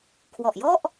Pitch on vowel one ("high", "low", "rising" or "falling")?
low